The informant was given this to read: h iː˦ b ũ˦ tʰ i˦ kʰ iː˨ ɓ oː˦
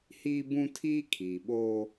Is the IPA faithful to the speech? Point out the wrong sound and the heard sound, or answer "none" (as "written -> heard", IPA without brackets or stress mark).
i˦ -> iː˦